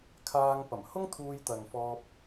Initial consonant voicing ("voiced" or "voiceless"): voiceless